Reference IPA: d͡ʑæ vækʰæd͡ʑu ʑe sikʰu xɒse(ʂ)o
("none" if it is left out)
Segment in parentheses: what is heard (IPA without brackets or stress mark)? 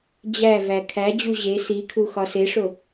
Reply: ʂ